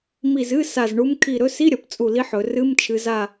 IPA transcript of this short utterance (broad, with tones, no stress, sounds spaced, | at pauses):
m i˧˩ z ɨ˧˥˧ s a˧˩ z ɳ u˧˥ m kʰ i˧˩ ɾ ɵ˧˥˧ s i˧˥˧ ɾʲ ɐ˩˧ p t͡sʼ u˧˩ l i˧˥ ħ ɵ˩˧ r ɨ˧˥˧ m t͡ʃʰ ɨ˩˧ z a˧˩